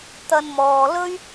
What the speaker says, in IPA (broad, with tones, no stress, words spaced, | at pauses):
t̪ɐ˧nmɔː˨lɵ˥ɥ